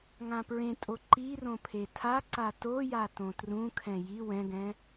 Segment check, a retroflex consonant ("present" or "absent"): absent